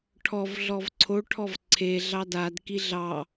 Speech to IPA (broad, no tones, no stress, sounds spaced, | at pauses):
ʈʰ ɔ v ɮ ɔ v ǀʰ o ʈʰ ɔ v ǀʰ e ɮ ɑ d a d k i ɮ ɑ